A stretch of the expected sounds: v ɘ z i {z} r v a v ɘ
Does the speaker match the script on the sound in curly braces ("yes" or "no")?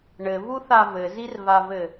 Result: no